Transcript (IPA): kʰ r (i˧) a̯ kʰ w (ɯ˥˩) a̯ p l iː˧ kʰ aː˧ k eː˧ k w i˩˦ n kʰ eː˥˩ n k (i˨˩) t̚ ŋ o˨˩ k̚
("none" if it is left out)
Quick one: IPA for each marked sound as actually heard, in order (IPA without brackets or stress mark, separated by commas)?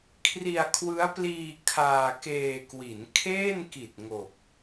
i˧, ɯ˦˥, i˨˩